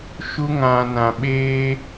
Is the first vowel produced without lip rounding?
no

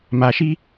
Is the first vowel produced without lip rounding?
yes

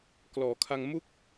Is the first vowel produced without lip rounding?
no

